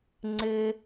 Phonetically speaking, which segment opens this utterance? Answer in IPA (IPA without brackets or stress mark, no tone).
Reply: ŋ͡ǀ